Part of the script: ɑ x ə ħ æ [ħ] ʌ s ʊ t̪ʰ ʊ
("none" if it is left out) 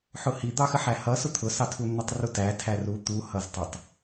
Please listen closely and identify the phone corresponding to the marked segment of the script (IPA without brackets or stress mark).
h